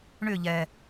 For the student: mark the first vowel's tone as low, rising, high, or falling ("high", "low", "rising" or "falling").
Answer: falling